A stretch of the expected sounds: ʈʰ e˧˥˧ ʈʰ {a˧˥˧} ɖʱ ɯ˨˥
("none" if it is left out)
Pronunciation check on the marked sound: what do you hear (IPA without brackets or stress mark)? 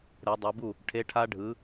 a˦˥